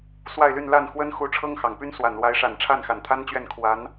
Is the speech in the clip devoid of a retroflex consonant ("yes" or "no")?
no